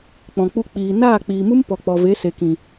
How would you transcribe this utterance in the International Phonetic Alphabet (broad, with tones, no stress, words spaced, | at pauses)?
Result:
k͡pɔ̃˨k͡pu˧k͡piː˨ naː˦˨k͡piː˨mu˦m pɔ˨ k͡pɔ˨ve˨˦ se˨kĩ˨